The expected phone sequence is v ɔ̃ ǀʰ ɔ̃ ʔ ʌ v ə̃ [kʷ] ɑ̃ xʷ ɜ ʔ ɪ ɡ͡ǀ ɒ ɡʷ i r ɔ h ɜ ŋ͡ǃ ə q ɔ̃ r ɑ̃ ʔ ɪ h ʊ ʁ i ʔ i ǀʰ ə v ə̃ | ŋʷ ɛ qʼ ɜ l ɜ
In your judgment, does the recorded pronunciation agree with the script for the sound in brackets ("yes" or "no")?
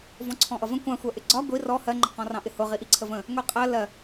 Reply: yes